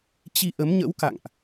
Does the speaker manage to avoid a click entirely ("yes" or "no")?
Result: yes